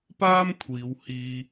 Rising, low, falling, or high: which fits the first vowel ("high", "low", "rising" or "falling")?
high